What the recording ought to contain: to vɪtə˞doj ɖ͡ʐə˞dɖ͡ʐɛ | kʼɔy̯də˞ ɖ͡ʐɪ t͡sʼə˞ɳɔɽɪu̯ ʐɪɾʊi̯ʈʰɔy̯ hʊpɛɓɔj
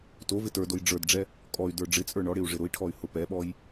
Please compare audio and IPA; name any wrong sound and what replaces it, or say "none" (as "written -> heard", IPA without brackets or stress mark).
none